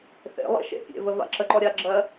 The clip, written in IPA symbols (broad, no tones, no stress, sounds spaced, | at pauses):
θ ḛ lˠ ḛ ʃ ḛ pʲ ḛ v ə v a̰ ǁ ə ǃ ɔ ɾʲ a ɡ͡ǁ ɜ